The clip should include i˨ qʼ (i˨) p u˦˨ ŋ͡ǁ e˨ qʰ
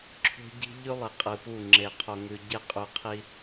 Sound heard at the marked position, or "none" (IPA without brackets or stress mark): ɨ˨